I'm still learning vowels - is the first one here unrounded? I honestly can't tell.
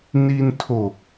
yes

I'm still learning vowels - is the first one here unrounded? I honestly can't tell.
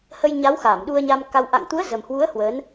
yes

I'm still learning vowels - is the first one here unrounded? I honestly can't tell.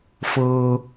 yes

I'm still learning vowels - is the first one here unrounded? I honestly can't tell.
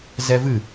yes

